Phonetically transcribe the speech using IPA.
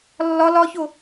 lː ɒ l ɒ ç o

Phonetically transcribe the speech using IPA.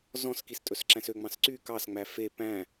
z ɔ̃ s k i s tʼ ɵ s ǁ æ̃ s ø ŋ͡m ɑ̃ s ǀ y k ɑ s ŋ͡m æ f e p æ̃

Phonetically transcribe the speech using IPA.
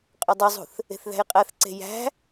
qʼ ø dˤ y zˤ ṳ θ | e̤ θ ð æ̤ j qʼ æ θ ǀ e̤ j æ̤

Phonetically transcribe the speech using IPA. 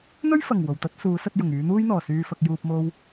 n̪ ɵ˥ ɥ f ɐ˨˩ ŋ w o˨˩ w t̪ ɐ˥ t̚ s uː˨˧ s ɐ˧ t̚ j ʊ˨˩ ŋ yː˨˧ n̪ uː˥ j n̪ ɔː˨˩ s yː˨ f ɐ˨ k̚ j uː˨ p̚ m o˧ w

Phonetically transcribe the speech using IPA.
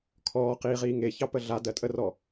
kʰ ɔː q iː ʁ iː ŋ e ç ɑ p ə ɮ a d ɜ tʼ ə r ɔ

